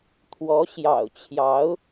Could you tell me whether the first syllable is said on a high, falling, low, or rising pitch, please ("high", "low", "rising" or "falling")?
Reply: rising